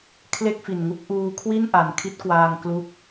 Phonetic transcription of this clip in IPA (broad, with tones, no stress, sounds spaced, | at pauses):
kʰ l e˥˩ k̚ f i˨˩ n ŋ u˦˥ k̚ ʔ uː˧ kʰ w i˥˩ n ʔ a˨˩ n kʰ i˦˥ t̚ k w aː˧ ŋ k l u˦˥ k̚